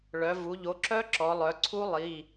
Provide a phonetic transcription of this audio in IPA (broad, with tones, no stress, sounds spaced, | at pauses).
ɭ œ˩˧ v u˩˧ ʎ o˩˧ ǁ œ˦˥ ǁ ɔ˩˧ lˠ œ˩˧ ǀʰ u˦˥ lˠ i˩˧˩